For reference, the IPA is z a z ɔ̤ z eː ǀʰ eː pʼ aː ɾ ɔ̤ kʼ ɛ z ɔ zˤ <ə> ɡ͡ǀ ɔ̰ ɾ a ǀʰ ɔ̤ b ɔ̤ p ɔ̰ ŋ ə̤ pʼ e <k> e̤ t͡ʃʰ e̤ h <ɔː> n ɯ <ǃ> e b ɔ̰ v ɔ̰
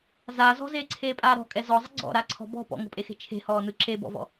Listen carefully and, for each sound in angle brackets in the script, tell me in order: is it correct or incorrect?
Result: correct, incorrect: x, correct, incorrect: ǁ

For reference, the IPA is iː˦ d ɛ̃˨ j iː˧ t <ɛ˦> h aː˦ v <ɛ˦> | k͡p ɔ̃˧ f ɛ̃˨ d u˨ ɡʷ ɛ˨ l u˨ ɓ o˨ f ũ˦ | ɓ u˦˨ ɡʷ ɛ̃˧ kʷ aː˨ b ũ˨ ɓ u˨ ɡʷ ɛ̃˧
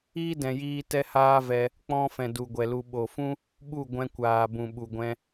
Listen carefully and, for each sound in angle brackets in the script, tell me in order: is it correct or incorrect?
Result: correct, incorrect: ɛ˧

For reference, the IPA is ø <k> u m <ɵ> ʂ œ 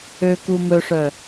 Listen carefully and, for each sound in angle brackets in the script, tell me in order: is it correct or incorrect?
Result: correct, correct

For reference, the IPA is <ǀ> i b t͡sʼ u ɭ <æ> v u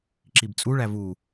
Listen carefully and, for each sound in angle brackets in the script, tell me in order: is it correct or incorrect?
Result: incorrect: ǁ, correct

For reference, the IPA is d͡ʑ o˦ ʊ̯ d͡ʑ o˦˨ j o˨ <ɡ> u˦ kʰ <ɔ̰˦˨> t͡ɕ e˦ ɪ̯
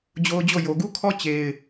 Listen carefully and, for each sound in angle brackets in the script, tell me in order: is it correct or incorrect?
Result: correct, incorrect: ɔ˦

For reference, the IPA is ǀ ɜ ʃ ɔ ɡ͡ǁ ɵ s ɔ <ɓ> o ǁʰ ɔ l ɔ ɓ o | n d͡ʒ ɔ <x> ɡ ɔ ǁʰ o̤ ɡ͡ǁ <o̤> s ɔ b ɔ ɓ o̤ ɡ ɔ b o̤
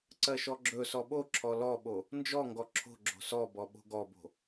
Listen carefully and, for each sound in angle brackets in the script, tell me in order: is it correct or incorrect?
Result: correct, incorrect: ŋ, correct

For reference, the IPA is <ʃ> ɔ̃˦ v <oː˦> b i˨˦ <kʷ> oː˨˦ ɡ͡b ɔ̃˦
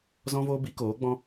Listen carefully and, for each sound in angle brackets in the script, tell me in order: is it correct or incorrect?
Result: incorrect: z, correct, incorrect: k

